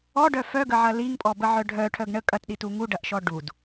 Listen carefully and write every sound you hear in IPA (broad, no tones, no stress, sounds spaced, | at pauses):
ɔ ɖ œ f œ ɡ ə ʕ ɐ l i ŋ pʼ ɔ b ə ʕ œ ɖʱ œ ʈʰ œ ɡ ɳ ə kʼ ɐ t ɗ i t u ŋ u ɖ ɐ ʔ ʃ ɔ ɖ u d